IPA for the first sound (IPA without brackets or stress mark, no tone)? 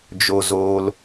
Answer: d͡ʒ